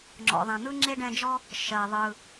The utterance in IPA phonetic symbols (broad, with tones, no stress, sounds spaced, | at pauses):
ŋ͡ǁ ɔ̰˨ ðˤ ɛ̃˨ n̪ ɯ˥ ŋ͡ǁ e˥ ɖ ɛ̃˦ d͡ʒ ɔ˥ | ʃ ɜ˨ ðˤ ɯ˨